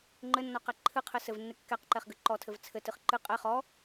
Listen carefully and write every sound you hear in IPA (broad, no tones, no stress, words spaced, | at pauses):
ŋ͡ǃɘnːɔqɛ ǃʰɨqʰɘ sɘvnːɨ kːɛqǃɛχɡɨ ǃɔtʰɘv t͡sʰɘtɨχ ǃɨ qʼɛ χɔ